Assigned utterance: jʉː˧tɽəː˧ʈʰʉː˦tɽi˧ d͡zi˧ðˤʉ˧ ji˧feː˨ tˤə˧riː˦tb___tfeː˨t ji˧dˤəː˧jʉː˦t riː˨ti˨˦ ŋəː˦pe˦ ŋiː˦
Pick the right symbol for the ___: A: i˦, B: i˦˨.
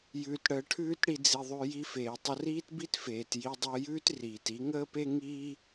A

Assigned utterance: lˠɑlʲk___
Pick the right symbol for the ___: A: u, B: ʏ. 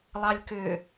B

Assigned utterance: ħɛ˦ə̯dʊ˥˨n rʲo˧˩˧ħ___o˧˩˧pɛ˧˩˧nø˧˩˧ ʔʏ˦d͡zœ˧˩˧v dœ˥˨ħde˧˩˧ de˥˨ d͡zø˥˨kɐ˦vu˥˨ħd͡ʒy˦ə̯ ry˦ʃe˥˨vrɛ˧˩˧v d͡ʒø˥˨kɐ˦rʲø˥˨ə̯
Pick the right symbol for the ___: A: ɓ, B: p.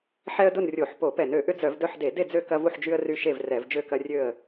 B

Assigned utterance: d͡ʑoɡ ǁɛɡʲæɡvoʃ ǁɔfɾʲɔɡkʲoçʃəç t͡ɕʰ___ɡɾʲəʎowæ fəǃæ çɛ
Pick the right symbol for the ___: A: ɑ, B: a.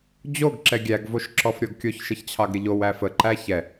A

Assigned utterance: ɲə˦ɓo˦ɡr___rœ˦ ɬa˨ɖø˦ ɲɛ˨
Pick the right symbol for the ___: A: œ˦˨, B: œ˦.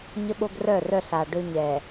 A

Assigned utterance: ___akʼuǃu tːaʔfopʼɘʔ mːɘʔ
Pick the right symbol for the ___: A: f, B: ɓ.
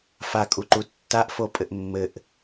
A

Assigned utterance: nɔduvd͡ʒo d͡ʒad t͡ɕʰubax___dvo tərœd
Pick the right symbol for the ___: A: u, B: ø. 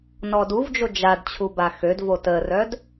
B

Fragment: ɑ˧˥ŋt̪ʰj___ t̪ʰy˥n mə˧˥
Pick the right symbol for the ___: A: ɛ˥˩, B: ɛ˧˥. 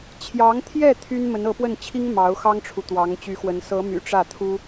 A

